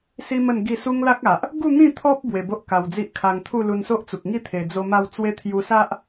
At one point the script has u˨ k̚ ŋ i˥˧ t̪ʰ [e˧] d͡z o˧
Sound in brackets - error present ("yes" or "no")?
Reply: yes